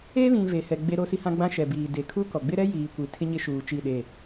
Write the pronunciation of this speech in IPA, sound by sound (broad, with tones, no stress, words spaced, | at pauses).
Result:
e˦βĩ˨ ve˨hɛ˨ ɡ͡be˦ɾo˦si˦hã˦ ɡ͡bã˦ʃɛ˨biː˨ de˨ kʰu˦kɔ˨ ɡ͡bɪ˦ɾɛ˦ jiː˨kʷi˨ tʰɪ˦ɲɪ˦ʃuː˨ t͡ʃi˦˨ɗe˦˨